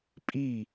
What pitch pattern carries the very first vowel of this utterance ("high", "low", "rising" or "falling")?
falling